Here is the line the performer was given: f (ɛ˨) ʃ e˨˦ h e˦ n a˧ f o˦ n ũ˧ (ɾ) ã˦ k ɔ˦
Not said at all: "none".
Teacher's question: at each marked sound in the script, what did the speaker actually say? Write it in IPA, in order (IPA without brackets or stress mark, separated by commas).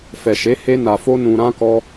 ɛ˨, ɾ